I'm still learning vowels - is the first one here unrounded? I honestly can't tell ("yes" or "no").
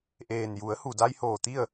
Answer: yes